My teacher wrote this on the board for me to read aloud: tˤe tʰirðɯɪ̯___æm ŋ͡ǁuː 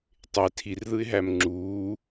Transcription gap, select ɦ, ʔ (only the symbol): ɦ